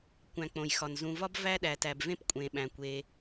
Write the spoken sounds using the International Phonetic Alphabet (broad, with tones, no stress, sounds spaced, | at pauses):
kʷ æ̃˨ k͡p õ˩ j x ɒ˩ n z ũ˨ v ɒ˥ b v æ˥ ɗ æ˩ t æ˩ b v ẽ˥ p kʷʼ ẽ˩ ɓ æ̃˩ kʷ e˩